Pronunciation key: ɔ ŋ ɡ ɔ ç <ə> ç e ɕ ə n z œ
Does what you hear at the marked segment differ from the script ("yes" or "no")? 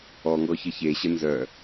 no